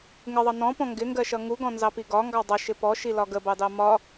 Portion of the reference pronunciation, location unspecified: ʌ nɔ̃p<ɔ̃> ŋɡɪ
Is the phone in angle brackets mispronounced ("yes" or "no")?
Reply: no